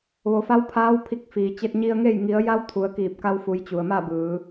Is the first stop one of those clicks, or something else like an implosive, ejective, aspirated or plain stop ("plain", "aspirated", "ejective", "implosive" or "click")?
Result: aspirated